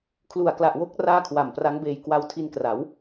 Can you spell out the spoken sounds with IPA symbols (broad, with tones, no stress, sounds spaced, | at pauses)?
kʰ l u˨˩ a̯ k l a˨˩ ʔ w o˦˥ k̚ r aː˥˩ kʰ w a˨˩ m p r a˦˥ ŋ b eː˧ j k w a˧ w tʰ i˧ n k r a˩˦ w